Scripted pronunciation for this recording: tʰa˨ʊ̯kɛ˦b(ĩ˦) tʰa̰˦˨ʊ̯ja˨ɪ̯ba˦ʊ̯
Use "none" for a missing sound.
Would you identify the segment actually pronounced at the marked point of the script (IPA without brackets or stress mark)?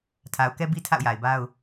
i˦